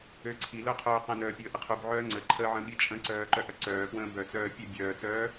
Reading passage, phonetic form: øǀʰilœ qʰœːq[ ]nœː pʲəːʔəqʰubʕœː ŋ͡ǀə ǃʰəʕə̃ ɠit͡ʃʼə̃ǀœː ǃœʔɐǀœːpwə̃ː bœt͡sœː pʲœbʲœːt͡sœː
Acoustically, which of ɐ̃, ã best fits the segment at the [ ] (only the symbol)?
ɐ̃